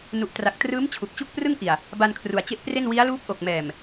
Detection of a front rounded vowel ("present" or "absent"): absent